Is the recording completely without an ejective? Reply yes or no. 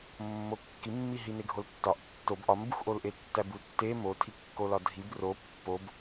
yes